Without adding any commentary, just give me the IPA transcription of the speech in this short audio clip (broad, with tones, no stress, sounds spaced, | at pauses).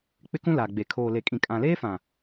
k͡p ɪ˦ k ũ˦ l aː˨ ɡ͡b e˨ kʰ oː˨ l e˨ kʼ ĩ˨ kʼ ã˨ l eː˦ f ã˨